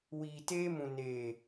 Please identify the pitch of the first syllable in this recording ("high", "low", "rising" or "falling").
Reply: low